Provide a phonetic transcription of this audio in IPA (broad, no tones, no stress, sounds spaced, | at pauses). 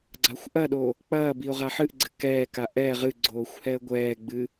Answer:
ɡ͡ǀ a xʷ ʔ ɐ ɗ o | k͡p ɐː b i ʊ̯ ʁ a ħ ɨ ʔ ɡ͡ǀ ɘ k ɛː k a ʔ ɛ ʁ ɨ ɡ͡ǀ oː xʷ h ɛ ə̯ ɡʷ ɛː ɡ͡b ɨ